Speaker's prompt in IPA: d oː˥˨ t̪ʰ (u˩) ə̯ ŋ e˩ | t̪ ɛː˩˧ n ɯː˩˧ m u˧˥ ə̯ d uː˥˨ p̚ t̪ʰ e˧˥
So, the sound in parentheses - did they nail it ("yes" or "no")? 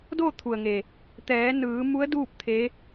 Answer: yes